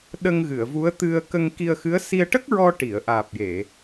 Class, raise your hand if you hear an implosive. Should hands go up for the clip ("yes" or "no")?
yes